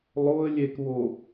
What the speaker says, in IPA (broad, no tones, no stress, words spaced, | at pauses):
lˠoə̯ lʲekβo